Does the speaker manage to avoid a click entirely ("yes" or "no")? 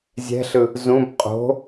yes